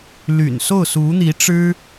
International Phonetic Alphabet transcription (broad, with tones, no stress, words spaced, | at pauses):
ly̰˨˩nso˥˩ʊ̯ su˧˥n̪i˧˥ ʈ͡ʂɻ̩˥